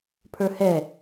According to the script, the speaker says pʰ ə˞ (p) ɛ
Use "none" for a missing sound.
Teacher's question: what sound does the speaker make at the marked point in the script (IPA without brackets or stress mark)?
h